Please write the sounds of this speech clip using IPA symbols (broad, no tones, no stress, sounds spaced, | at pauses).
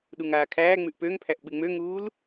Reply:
ɗ u ŋ aː kʰ æː ŋ͡m ʉ ʔ p ø ŋ pʰ æ ʔ ɓ ɨ ŋ͡m ø ŋ uː l